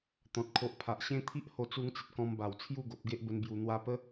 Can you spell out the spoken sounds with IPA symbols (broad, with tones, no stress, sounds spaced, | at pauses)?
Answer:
t̪ ɔ̃˨ t̚ kʰ o˨ ʔ pʰ a˨ ʔ ɕ ẽ˦ t̪ʰ i˦ ʔ h o˧ t͡s u˧ ŋ t͡s ə˨ t̚ k ɔ̃˧ m b a˨˩ w t͡sʰ j u˥˧ ɡ o˨ p̚ ɡ e˦ ʔ b ə˧ n b j u˨˩ n̪ w a˧ p ə˦